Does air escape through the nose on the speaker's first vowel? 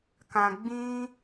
yes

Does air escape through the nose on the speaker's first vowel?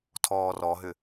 no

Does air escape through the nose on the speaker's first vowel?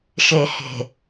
no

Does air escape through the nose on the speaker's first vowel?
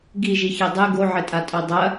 no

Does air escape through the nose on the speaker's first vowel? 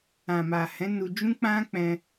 yes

